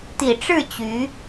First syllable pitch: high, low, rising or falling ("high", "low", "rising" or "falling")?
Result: low